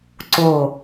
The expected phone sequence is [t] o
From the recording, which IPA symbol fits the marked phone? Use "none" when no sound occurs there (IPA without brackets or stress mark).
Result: ǀ